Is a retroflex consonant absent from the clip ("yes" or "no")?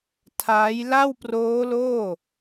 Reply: yes